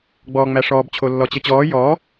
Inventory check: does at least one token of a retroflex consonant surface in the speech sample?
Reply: yes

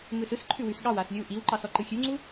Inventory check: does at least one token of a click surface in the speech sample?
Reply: yes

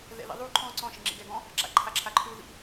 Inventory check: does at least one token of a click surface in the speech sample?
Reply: yes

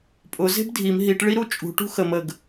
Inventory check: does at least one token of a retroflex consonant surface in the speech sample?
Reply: yes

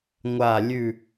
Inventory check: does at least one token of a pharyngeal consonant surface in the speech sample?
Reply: no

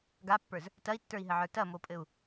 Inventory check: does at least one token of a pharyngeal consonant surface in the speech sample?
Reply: yes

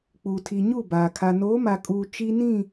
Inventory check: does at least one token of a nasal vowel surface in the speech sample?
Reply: yes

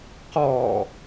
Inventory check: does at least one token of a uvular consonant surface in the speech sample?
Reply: yes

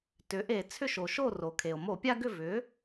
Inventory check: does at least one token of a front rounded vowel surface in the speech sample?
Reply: yes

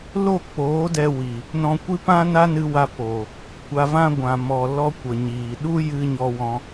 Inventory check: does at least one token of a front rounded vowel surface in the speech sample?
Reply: no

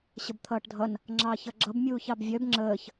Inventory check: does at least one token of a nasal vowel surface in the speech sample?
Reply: no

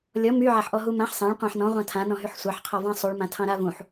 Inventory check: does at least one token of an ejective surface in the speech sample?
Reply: no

